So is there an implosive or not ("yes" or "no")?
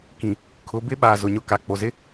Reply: yes